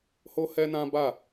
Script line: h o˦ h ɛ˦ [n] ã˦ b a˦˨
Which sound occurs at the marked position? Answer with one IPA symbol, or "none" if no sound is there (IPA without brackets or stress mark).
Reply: n